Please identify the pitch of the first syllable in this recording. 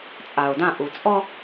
low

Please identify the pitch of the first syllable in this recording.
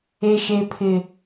high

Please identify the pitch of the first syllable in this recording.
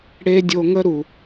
high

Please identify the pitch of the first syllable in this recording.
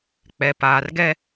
low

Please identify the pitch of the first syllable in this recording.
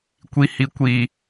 low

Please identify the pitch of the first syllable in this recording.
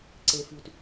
low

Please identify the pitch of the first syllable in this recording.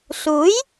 rising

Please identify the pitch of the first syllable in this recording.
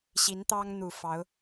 rising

